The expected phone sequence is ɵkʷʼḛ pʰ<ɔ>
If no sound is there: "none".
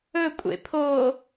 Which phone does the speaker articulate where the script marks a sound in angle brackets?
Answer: o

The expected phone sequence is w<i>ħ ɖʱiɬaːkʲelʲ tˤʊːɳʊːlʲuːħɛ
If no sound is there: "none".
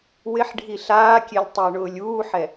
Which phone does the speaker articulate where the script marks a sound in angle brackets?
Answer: ɪ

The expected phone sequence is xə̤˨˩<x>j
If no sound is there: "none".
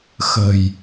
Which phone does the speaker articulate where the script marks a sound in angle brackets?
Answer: none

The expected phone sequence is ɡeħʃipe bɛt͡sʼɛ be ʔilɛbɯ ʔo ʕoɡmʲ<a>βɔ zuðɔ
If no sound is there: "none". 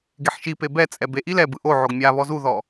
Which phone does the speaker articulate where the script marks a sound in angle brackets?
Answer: a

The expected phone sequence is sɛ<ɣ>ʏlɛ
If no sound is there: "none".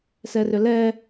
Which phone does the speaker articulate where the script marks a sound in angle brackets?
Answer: r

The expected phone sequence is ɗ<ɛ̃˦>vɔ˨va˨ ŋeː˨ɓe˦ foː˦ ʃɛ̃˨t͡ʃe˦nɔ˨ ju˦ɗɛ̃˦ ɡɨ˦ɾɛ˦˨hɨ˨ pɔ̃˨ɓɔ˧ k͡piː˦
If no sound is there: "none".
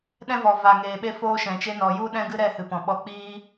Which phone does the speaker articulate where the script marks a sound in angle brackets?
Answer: ɛ̃˦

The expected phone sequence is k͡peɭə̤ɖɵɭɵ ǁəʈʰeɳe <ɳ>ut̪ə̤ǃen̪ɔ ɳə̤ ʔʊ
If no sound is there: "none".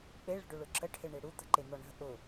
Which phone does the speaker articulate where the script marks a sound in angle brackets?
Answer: ɽ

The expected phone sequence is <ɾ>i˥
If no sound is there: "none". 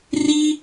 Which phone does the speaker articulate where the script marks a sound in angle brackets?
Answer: r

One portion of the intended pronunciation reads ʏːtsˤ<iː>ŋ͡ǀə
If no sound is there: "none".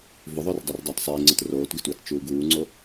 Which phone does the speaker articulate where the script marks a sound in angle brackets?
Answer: iː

